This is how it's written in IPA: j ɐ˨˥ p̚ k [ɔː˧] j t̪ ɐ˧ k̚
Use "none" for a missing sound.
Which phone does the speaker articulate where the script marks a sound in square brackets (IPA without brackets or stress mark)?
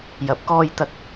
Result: ɔː˧